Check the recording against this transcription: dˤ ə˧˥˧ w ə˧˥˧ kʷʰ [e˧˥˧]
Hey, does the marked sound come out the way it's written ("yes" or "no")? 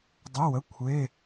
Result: yes